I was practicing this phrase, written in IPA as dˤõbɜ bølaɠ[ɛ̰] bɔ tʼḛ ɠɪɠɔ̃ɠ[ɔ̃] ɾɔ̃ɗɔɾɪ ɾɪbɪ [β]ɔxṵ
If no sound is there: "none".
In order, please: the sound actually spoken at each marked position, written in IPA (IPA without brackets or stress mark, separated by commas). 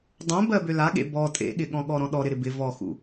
ḛ, ɔ, v